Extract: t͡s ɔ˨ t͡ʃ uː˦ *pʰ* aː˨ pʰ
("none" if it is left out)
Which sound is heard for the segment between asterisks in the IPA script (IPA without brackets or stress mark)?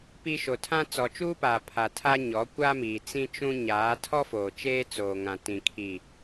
p